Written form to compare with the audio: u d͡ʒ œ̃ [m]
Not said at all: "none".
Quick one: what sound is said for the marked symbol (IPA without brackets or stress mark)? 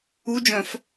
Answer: f